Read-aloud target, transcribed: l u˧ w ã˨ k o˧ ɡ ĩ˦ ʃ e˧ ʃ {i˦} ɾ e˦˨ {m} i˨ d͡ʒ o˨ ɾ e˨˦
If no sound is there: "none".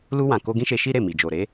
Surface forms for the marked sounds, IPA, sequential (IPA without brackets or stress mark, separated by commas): i˦, m